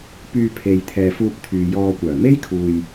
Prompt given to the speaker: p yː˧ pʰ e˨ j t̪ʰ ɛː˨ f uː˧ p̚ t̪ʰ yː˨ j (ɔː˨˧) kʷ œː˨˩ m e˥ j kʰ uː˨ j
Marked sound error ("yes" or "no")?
yes